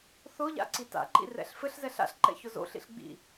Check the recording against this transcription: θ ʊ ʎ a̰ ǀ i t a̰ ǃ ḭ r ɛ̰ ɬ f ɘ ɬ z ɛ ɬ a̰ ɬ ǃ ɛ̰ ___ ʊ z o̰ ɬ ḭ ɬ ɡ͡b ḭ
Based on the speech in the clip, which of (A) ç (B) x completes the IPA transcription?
A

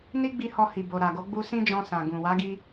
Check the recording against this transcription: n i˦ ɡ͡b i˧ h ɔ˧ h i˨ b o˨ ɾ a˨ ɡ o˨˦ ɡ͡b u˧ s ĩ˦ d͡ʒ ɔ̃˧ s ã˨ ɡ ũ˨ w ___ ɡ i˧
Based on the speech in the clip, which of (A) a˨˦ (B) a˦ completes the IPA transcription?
A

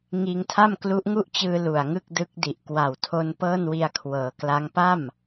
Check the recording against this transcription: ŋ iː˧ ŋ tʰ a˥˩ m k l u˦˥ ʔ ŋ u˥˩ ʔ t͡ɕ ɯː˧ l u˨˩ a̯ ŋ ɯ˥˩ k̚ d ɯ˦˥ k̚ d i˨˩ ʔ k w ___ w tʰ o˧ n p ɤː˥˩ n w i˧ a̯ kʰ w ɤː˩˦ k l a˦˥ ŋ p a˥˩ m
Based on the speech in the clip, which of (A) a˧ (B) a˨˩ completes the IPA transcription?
B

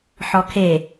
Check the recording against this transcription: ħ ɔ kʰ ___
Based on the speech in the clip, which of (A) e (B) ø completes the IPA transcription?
A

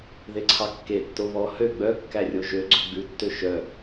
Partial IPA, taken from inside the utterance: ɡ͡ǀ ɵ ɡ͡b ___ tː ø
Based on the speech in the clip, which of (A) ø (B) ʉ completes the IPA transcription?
B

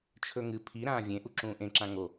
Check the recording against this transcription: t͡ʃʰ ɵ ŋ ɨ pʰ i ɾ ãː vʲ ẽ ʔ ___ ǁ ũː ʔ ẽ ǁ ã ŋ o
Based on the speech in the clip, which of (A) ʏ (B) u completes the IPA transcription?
B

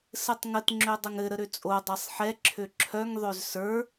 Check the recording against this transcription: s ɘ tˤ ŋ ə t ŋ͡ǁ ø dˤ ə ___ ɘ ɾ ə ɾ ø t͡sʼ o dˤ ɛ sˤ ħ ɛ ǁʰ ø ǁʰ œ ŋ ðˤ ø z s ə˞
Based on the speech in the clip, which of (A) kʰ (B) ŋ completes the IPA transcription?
B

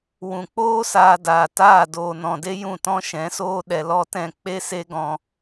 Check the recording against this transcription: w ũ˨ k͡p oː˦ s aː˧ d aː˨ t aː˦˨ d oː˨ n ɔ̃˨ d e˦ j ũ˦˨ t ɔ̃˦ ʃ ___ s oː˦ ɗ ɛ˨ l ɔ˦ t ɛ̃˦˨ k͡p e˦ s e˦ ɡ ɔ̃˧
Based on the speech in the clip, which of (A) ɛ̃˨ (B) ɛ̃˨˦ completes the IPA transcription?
B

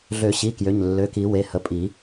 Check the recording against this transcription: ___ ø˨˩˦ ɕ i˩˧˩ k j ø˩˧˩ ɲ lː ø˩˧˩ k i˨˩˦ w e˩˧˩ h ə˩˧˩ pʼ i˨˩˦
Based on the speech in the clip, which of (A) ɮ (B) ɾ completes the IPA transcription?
A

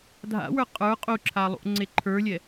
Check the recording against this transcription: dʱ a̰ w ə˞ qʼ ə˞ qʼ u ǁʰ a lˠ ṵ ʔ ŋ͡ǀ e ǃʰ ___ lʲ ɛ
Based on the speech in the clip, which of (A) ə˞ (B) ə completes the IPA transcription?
A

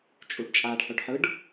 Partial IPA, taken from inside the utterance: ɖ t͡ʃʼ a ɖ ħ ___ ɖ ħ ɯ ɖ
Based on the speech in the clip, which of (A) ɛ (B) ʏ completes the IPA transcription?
B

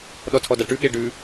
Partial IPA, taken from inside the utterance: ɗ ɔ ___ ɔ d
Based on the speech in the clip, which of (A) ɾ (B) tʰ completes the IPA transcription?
B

